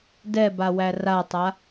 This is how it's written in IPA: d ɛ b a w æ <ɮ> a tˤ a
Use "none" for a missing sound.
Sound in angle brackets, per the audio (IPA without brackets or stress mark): r